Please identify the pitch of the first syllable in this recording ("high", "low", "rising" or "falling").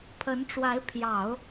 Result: rising